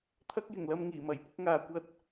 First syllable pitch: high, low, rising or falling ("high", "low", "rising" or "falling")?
high